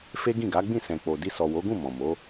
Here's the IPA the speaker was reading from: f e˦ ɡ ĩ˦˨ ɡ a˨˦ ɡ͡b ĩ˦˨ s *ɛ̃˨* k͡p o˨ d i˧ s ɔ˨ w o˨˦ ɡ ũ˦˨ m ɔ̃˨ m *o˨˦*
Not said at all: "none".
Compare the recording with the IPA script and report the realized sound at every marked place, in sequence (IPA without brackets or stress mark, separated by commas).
ɛ̃˨, o˨˦